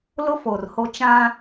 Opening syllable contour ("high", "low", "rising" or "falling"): high